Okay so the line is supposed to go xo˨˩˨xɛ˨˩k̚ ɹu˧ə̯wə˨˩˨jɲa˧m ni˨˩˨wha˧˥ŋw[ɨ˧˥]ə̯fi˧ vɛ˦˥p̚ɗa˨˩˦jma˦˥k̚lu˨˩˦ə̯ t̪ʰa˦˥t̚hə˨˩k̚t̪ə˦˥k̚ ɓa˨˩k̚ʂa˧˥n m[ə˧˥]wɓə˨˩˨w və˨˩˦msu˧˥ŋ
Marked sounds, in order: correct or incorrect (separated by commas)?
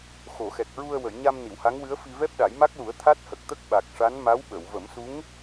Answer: correct, incorrect